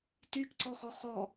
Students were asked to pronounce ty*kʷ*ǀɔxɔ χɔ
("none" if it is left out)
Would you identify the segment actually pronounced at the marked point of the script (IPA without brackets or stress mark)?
k